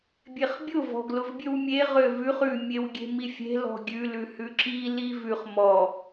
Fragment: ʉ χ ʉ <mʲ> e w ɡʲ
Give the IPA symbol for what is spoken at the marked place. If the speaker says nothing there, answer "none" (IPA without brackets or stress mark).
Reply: mʲ